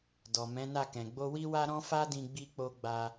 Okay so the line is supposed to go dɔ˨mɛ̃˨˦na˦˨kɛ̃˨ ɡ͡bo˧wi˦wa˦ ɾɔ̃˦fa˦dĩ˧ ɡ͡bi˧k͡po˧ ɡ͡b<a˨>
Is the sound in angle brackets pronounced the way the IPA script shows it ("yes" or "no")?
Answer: no